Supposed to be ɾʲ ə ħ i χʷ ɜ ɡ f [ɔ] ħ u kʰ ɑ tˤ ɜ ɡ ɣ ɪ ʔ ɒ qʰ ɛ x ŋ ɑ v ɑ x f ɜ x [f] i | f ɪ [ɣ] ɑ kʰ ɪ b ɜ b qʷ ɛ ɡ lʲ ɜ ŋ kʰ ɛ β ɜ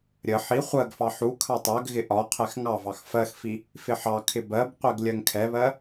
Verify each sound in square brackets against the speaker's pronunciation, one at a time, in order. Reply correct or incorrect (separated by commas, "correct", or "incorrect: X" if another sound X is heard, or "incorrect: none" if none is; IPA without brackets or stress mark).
incorrect: ɑ, correct, incorrect: ħ